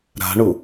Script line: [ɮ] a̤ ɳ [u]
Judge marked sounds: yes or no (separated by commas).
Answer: no, yes